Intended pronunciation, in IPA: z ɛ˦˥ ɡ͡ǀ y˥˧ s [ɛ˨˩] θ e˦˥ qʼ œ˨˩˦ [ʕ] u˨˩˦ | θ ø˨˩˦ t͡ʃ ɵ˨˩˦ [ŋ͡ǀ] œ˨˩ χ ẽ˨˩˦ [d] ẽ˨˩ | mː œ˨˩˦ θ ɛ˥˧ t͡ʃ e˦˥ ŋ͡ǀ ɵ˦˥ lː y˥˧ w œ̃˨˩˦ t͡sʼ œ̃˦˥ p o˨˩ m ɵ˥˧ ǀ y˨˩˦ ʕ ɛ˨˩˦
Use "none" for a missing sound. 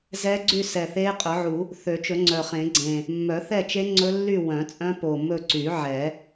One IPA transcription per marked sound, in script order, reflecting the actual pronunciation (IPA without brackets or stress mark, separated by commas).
ɛ˨˩, ʕ, ŋ͡ǀ, ɡ͡ǀ